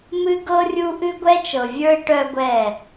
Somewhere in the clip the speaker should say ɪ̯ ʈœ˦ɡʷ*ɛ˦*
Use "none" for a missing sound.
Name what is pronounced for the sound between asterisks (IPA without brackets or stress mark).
ɛ˦˨